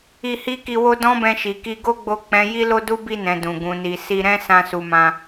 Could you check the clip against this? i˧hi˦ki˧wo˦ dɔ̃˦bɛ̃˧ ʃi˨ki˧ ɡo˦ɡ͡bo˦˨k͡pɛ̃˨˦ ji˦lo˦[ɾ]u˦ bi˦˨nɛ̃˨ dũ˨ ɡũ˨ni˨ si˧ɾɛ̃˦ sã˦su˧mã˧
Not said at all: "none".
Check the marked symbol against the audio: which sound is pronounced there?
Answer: d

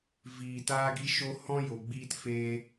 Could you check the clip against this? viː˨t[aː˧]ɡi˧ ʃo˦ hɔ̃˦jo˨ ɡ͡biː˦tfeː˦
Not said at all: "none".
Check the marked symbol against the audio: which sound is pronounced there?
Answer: aː˧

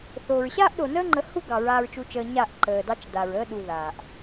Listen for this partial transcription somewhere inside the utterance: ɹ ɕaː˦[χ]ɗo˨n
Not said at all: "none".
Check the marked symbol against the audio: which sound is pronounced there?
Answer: ʔ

